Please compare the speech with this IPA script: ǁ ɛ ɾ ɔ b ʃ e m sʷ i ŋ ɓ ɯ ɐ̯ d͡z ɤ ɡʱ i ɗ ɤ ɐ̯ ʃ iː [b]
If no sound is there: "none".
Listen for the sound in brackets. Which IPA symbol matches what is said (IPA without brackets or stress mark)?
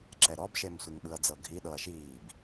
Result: b